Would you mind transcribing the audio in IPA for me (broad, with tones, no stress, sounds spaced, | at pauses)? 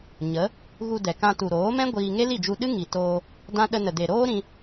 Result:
ɲ ə˨˦ | ɣ u˧ d ɛ˨ k ã˧ t u˨ ɾ oː˨˦ m ɛ̃˦ ɡʷ iː˧ ŋ e˦ l i˦˨ d͡ʒ u˧ ɗ ɨ˦ ŋ i˨ t oː˧ | d ã˦ ɗ ə˧ n ə˨ d e˨ ɾ oː˦ ɾ ĩ˧